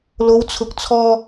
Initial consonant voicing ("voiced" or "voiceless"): voiced